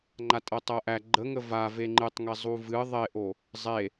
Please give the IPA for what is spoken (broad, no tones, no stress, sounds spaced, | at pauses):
ŋ͡ǃ a tʼ ɤ tˤ ɤ ʔ æ ɡ͡ǃ ə ŋ ə v a v e ŋ͡ǃ ɨ tˤ ŋ e zˤ u v ɨ ðˤ e ʔ o | zˤ e